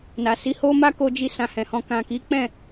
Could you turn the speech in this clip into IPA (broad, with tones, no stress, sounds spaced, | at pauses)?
n a˨ s i˨˦ h o˦ m a˦ k o˧ d͡ʒ i˧ s ã˧ h ɛ̃˨ h ɔ̃˧ k ã˨ k i˨˦ k͡p ɛ̃˦˨